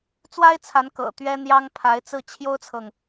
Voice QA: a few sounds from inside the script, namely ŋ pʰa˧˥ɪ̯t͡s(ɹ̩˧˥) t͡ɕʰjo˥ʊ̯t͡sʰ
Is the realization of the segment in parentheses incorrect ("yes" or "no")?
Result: yes